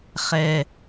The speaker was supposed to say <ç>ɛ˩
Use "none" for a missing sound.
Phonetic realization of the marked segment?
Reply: χ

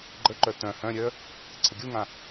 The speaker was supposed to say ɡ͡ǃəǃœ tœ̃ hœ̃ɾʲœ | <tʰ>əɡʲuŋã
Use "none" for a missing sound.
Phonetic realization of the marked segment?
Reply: ǀʰ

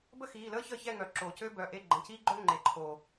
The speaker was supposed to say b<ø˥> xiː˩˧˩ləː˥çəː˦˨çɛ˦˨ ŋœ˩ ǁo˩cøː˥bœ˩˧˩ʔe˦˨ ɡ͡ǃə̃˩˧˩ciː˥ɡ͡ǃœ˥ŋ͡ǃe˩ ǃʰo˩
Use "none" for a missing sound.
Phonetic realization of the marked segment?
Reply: ə˥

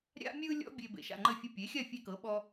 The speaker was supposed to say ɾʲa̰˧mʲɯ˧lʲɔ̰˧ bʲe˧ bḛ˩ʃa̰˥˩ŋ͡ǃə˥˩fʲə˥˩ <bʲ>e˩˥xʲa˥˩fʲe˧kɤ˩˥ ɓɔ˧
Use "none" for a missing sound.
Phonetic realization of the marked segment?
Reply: pʲ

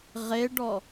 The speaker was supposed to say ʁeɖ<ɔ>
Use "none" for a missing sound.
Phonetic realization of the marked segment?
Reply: ɔ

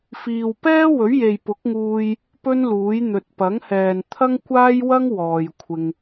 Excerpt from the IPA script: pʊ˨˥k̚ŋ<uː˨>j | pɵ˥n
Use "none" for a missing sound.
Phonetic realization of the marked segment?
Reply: uː˧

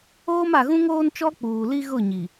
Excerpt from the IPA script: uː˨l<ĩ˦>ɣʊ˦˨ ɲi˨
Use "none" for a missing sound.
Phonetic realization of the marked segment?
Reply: i˦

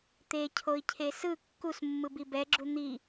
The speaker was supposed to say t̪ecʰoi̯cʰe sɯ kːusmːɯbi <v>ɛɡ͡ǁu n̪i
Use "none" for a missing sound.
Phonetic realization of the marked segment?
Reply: b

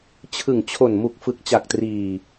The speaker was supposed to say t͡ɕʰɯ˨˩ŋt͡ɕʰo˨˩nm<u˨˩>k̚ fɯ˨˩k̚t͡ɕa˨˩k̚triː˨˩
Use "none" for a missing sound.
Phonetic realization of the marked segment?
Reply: u˨˩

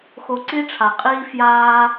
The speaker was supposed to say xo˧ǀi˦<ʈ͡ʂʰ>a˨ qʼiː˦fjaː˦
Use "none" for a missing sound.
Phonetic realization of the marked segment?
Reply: ʈ͡ʂʰ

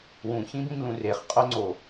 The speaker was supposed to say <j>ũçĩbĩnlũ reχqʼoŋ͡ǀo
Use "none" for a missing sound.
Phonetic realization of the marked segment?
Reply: w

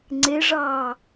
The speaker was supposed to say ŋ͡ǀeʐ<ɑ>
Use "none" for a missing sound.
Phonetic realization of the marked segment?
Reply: ɑː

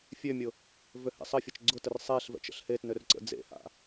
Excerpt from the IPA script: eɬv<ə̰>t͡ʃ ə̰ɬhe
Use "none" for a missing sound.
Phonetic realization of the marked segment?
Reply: ɛ̰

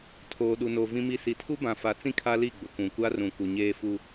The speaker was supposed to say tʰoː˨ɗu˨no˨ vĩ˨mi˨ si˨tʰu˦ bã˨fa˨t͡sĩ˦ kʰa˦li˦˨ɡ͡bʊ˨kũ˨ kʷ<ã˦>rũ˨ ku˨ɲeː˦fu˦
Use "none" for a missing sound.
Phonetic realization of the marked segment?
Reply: a˦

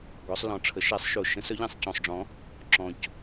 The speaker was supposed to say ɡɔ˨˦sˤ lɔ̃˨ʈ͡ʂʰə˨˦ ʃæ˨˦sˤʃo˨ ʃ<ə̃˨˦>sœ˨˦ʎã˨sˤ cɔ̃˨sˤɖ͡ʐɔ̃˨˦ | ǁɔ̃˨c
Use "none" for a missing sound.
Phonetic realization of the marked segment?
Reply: ə̃˨˦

